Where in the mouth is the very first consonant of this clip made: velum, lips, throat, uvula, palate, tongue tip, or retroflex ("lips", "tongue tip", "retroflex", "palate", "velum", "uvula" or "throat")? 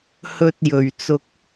throat